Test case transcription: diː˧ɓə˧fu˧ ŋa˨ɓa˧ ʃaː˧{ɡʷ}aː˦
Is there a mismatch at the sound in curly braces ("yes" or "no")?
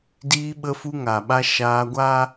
no